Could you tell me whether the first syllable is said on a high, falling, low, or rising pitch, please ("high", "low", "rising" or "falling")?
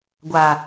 low